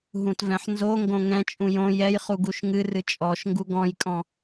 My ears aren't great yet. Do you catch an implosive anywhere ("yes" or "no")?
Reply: no